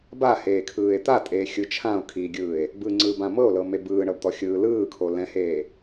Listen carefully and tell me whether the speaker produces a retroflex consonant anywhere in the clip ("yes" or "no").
yes